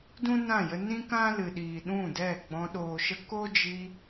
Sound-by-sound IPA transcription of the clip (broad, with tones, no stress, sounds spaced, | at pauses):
d ũ˦ n ã˦˨ j ə˧ n ĩ˦ k ã˦ l ɨ˨ ɗ iː˨ ɗ ũ˦˨ d ɛ˦˨ ɡ͡b ɔ̃˧ ɗ oː˨ ʃ ə˧ k o˦ d͡ʒ i˧